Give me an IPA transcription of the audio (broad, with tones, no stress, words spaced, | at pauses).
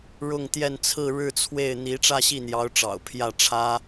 ɻʊ˥˧ŋ t̪jɛ˥˧nt͡sʰɹ̩˥˧ ɻɻ̩˥˧t͡sʰwe˥˩ɪ̯ n̪i˧˥ ʈ͡ʂä˥˧ɕi˥˩n̪jɑ˧˥ʊ̯ʈ͡ʂɑ̰˨˩ʊ̯ pʰjä˥˩ʈ͡ʂʰä˥